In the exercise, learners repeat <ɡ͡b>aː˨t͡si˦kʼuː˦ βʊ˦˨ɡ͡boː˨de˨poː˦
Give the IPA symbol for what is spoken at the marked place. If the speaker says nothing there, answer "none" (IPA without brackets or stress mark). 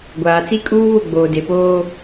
ɡʷ